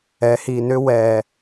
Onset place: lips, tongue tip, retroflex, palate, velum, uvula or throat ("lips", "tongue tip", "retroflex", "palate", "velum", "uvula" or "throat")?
throat